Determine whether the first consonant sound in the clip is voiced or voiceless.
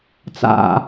voiceless